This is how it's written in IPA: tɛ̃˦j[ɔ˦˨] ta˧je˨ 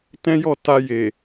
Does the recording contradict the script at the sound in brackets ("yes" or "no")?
no